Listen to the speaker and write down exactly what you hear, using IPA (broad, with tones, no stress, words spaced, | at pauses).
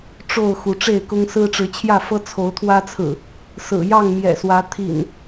ʈ͡ʂo˥˨ʊ̯ xu˨˦ʈ͡ʂe˥˨ɪ̯kʊ˦ŋ sɹ̩˦ʈ͡ʂɻ̩˨˦t͡ɕʰjä˥˨fɤ˦ t͡sʰo˨˦ʊ̯t̪ʰwä˦t͡sʰɹ̩˨˩ | sɹ̩˨˩ jɑ˥˨ŋmjɛ̰˨˩swä˨˦ t̪ʰḭ˨˩n